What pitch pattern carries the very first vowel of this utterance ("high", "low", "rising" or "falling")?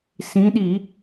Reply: rising